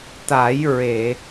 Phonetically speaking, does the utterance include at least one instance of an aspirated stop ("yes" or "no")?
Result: no